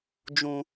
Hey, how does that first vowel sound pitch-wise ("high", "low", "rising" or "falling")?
low